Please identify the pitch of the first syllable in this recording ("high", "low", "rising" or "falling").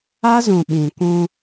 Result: high